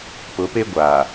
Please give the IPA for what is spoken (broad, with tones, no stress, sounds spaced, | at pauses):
p ʊ˨˦ p e˦ ɡʷ aː˨